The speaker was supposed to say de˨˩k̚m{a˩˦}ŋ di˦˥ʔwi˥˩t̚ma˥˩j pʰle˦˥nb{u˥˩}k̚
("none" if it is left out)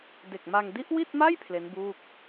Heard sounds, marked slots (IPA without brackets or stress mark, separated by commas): a˧, uː˥˩